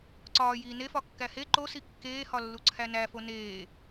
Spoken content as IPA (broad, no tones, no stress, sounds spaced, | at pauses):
ǀ ɒː j iː n e f ɒ kː æ h e ǃ o s i kː eː h ɒ lː u ǀʰ æ n æ f o n eː